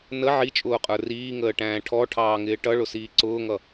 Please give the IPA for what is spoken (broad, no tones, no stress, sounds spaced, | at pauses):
n ə ʕ i t͡ʃʼ ʊː qʼ ə˞ r iː ŋ əː ʈ æ̃ː ʈʰ ɔ ʈʰ ɑː ŋ ɪː ʈ ʌ ɭ ʊ s iː ǀ ʊː ŋ ʌ